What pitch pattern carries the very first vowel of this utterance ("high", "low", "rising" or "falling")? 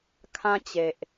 high